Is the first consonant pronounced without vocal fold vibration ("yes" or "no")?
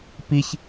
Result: yes